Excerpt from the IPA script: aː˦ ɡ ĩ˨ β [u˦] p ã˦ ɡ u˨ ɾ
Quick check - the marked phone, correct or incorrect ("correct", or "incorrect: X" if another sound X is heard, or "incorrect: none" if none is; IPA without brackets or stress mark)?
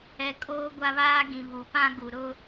incorrect: u˨